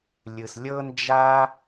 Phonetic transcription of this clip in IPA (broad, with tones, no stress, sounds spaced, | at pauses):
lʲ ɯ˩ s lʲ ɤ˧ n d͡ʒ a˧